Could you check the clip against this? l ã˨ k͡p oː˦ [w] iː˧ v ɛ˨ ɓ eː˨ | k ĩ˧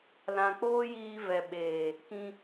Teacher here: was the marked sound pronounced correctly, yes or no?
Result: no